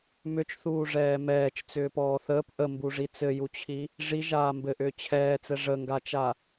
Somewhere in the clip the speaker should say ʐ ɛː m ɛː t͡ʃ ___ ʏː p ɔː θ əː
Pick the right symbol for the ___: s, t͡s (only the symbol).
t͡s